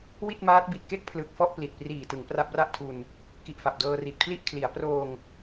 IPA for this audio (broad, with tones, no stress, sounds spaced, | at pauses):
w i˥˩ t̚ m aː˦˥ t̚ b i˨˩ t̚ k e˥˩ k̚ pʰ l ɯ˨˩ k̚ f ɔ˥˩ ʔ p l i˨˩ t̚ p r iː˨˩ t ɯ˩˦ ŋ p r a˦˥ p̚ r a˥˩ ʔ tʰ u˧ n | k i˨˩ ʔ f a˨˩ p̚ d ɤː˧ r i˨˩ t̚ pʰ l i˥˩ ʔ kʰ l i˩˦ a̯ p r oː˧ ŋ